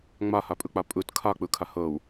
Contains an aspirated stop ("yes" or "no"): yes